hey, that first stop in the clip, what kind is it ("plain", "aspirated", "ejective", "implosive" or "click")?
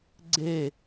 click